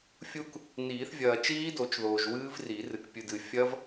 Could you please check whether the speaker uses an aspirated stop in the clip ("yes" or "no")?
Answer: no